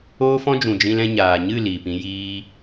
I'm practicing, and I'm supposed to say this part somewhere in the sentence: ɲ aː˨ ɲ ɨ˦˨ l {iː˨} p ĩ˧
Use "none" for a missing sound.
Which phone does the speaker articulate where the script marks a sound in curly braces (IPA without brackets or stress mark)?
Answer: iː˨